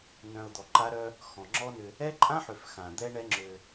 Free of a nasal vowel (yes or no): no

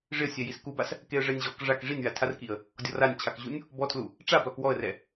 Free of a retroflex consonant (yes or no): no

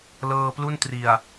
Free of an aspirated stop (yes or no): yes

